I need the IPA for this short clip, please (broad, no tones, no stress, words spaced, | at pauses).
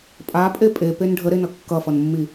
pʼapʼe pʼepen ɖʱəɾenʌ kːʌfʌnmːi